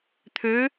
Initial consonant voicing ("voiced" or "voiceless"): voiceless